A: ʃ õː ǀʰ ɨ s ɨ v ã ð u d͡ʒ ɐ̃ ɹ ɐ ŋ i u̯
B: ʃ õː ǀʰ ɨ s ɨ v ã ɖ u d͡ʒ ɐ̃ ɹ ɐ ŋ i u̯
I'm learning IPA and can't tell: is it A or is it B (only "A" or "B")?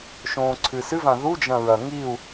A